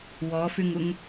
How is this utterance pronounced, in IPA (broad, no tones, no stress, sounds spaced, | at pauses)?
w ɔ f y ŋ u ŋ